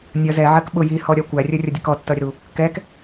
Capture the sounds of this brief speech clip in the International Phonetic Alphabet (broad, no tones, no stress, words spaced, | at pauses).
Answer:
nʲʌ zɛʕɜk ɓʊ jihɔɾʲɒ kʷærʲərʲʌdʲʌk ɔtːʌɾʲəɾu | kɛk